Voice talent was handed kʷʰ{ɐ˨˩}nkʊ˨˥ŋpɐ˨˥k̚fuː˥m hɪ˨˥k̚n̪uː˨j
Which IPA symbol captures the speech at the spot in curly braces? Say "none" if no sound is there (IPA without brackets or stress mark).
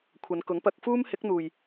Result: ɐ˨˧